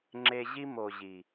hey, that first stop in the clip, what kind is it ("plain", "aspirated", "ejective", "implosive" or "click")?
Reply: click